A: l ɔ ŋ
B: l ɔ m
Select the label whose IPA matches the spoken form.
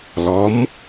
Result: B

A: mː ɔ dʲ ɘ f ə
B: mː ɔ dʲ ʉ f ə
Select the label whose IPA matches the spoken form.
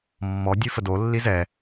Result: B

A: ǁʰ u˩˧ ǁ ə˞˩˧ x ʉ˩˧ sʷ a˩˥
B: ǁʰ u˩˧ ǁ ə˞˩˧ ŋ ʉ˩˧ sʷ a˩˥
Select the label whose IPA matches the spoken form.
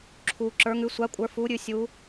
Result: B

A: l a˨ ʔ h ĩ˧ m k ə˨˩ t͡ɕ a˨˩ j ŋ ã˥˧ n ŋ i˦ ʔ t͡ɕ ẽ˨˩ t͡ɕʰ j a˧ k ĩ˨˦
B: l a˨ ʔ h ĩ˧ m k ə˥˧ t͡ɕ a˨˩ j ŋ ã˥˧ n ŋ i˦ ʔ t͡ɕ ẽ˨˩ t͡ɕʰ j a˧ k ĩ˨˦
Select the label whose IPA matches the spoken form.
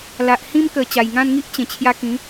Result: A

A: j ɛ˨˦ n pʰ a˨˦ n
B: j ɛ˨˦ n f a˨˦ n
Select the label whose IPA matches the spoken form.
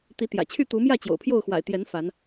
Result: B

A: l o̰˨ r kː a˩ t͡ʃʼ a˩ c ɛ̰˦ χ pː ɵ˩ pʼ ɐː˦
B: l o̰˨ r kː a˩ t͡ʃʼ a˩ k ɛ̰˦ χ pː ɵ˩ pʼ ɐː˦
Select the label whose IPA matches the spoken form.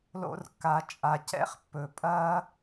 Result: A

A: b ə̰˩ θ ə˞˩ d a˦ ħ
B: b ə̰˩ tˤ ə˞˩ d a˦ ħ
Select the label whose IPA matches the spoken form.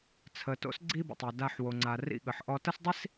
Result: B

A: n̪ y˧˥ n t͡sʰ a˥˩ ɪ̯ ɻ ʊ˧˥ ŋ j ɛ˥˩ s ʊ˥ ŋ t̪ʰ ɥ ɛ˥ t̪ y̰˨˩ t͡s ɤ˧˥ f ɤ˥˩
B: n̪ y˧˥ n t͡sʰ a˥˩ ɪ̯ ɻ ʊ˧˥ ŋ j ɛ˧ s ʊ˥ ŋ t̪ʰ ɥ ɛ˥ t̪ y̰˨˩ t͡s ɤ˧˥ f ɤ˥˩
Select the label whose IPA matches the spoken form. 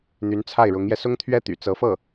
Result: B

